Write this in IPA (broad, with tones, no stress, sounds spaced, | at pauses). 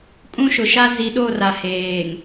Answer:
kʼ ũ˦ ʃ ʊ˨ ʃ a˦ z i˨˦ ɗ o˦˨ r a˨ h eː˨ ŋ